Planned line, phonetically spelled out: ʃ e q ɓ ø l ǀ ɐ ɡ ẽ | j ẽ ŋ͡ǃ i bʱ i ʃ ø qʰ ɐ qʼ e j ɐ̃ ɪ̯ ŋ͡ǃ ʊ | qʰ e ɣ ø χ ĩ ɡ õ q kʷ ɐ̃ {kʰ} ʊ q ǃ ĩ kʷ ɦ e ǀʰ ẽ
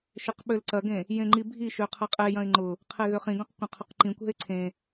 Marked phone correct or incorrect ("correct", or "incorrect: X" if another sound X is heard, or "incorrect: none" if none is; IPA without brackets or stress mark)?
incorrect: qʰ